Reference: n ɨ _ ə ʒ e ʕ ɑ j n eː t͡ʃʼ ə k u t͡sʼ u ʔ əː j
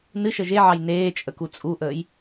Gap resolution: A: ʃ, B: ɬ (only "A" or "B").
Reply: A